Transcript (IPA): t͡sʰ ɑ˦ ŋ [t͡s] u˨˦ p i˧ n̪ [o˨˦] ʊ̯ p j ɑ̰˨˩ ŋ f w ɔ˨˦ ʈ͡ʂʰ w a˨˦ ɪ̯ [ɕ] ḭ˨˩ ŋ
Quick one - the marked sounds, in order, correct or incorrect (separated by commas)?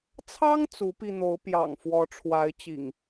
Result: correct, correct, incorrect